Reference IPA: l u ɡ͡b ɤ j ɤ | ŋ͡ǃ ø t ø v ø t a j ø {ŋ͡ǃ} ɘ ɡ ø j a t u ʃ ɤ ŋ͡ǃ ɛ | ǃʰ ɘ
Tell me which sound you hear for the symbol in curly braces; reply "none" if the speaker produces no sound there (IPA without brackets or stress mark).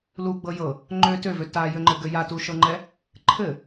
ŋ͡ǃ